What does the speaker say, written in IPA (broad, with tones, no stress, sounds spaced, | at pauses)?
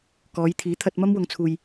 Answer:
k ɔː˨˧ j t̪ʰ iː˨˥ t̪ʰ ɐ˧ t̚ m ɐ˥ m w ʊ˨ ŋ t͡sʰ uː˨ j